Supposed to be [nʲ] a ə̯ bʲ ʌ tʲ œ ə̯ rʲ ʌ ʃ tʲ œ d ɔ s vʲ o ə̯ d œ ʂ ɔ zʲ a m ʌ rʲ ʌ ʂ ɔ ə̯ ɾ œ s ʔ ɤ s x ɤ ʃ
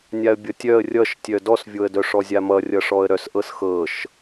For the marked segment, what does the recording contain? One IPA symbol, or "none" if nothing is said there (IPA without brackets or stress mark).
nʲ